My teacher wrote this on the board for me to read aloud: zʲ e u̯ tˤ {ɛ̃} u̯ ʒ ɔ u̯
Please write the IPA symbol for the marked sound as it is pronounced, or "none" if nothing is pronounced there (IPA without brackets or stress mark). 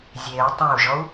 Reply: ɛ̃